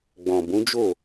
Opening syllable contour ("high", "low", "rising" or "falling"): low